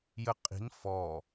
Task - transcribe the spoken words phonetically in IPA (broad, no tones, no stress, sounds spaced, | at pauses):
j ə qʼ i̤ n f ɔ